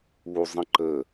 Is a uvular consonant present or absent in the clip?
absent